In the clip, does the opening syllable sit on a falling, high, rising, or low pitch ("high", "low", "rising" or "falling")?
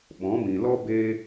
rising